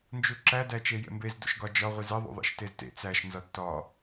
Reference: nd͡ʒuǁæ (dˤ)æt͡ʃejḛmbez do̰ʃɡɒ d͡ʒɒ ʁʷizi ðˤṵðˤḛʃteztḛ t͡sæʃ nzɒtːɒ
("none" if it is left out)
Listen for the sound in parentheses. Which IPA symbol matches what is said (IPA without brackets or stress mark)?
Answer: d